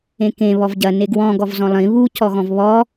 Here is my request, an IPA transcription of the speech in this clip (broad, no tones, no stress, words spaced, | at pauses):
ẽkẽ βɔvɟɐ neɡwɔ̃ ɡɔvzɔ̃lˠĩ βu cɔɣɔ̃vβɔ